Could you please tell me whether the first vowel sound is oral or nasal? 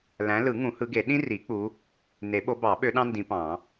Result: nasal